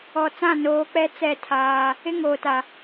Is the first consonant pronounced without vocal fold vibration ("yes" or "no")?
yes